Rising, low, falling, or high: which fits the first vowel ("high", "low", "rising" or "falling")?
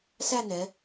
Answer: falling